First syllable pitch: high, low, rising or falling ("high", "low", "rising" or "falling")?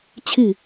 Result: falling